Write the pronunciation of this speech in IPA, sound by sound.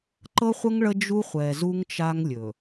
ǃ ɤ˦ χʷ ə˦ ŋ ɭ ə˦ d͡ʒ u˦ χʷ ɛ˨ z u˦ ŋ t͡ʃ a˦ ŋ lʲ ɵ˨

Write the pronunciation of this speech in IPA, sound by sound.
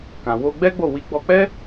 k ã˨ w o˧ ɡ͡b ɛ˦ ɡ͡b o˦˨ w i˨˦ ɡ͡b ɔ˧ k͡p ɛ˦

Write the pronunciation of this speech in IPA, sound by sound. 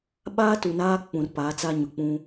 ɓ aː˦ t u˨ n aː˦ k͡p ũ˨ r p aː˨˦ t͡s a˦ ɲ ʊ˨ k͡p ũ˦

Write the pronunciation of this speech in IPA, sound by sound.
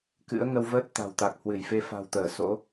k ɨ̰˧˥ ə̯ ŋ ə˧ w v əː˦˥ t̚ t̪ a̤˨˩ w t̪ a˨˩ k̚ h w ɨ˧˩ j f e˧ f a̤˨˩ w t̪ əː˧˩ s o̰˧˥

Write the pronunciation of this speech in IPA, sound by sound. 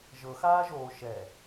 ʒ ɤ x aː ʒ oː ʃ ɛ

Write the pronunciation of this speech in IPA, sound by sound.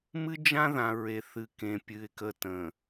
m ɨ˦ d͡ʒ ã˦ ð ã˨ ɹ e˨ θ ɨ˨ k ẽ˨ pʲ ɨ˨ ɪ̯ k ə˨ t ə̃˨

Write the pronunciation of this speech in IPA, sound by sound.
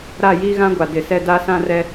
ɾ a˦˨ j iː˦ ɣ ã˦ ɡʷ a˨ d ɪ˨ s ɛ˦˨ d a˦ s ã˦ r ɛ˦

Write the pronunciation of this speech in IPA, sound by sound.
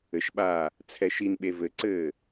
ɘ ʃ ɓ aː | t͡sʰ ɛ ʃ i n ɓ e v ɘ ǀ ɘː

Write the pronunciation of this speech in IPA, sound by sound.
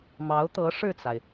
m ɑ˧˥ ʊ̯ t̪ ɤ˧˥ ʂ ɻ̩˥˩ t͡s a˩ ɪ̯

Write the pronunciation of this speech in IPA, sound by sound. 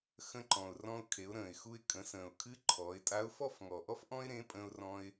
x ə̃˧ ǃ ɔ̃˩ ʊ̯ r ɔ̃˧ ʊ̯ kʰ e˩˧ ʊ̯ ɾ ə̃ː˩ ɪ̯ x u˧ ɪ̯ kʼ ə̃˩˧ s ə̃ː˩ ʊ̯ kʰ ɨ˧˥ ǃʰ ɔː˩˧ ɪ̯ tʼ a˧˥ ʊ̯ f ɔ˥ f ŋ ɔ˩ ʔ ɔ˥ f ʔ ɔ̃˥ ɪ̯ ɾ ẽ˧˥ pʼ ə̃ː˧ ʊ̯ r ɔ̃˧ ɪ̯

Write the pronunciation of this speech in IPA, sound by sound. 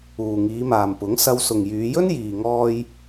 uː˨ ŋ iː˨˧ m aː˨ m p ʊ˨˥ ŋ s ɐ˧ w s ʊ˨ ŋ j yː˨˧ j ɵ˥ n j iː˨ ŋ ɔː˧ j

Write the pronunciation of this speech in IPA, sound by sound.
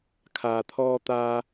kʰ aː˧ t̪ʰ ɔː˥ t̪ aː˥

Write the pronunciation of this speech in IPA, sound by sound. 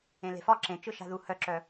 ẽ l e̤ f ɒ ǁ ẽ t͡ʃ ɯ ʃ a̤ ð u h œ ǁ œ

